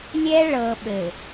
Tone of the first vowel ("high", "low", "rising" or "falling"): high